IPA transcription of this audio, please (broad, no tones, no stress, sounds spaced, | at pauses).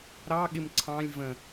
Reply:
ɾ ɑ ɠ ɪ m ǀʰ ɑ̃ lʲ v ə̃